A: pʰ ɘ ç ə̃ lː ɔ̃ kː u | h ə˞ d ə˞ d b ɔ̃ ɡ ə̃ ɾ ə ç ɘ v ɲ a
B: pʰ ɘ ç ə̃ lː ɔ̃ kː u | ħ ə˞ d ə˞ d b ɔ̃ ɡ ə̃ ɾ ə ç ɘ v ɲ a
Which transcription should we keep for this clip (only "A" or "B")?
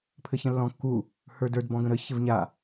A